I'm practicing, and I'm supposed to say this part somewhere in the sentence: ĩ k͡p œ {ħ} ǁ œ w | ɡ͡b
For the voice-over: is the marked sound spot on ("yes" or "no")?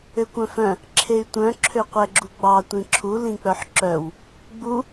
yes